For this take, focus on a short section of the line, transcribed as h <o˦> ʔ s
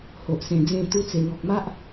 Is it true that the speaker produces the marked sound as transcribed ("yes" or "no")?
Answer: no